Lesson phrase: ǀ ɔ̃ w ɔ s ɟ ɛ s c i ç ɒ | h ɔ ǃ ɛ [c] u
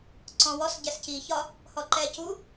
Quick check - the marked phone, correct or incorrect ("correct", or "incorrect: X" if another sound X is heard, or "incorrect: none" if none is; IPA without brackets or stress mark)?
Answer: correct